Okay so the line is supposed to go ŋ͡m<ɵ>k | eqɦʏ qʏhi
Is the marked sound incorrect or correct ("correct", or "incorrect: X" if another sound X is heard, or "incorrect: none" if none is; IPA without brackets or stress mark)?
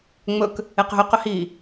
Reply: correct